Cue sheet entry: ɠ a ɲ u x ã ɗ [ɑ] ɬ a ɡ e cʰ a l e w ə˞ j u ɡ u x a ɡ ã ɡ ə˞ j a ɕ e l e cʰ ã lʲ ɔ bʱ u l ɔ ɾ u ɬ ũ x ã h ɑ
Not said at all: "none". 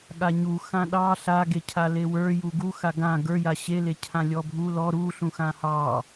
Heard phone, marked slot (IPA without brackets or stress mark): ɑ